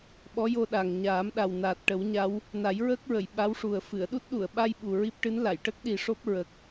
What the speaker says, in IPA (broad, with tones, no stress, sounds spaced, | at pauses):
ɓ ɔ˧˥ j o˧ ɗ a˨˩ ŋ ɲ aː˨˩˦ m ɗ a˨˩ w n aː˨˩ t̚ ʈ ə˨˩˦ w ɲ a˧˥ w | n a˨˩˦ j ɹ əː˦˥ k̚ ɹ ə˨˩˨ j ɓ a˧˥ w ʂ u˨˩ ə̯ f ɨ˨˩˨ ə̯ ɗ u˦˥ t̚ ɗ u˨˩˨ ə̯ ɓ a˧ j ɓ u˨˩ ɹ i˦˥ p̚ ʈ ɨ˧˥ n l a˨˩˨ j ʈ ə˦˥ k̚ ɗ i˨˩ ʂ o˦˥ p̚ ɹ ə˨˩ k̚